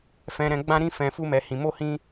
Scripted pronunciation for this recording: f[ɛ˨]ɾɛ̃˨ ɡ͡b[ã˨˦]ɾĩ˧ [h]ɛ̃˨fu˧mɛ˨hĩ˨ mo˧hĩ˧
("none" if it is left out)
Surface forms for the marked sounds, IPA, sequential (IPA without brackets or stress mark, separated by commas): ɛ̃˨, ã˧, f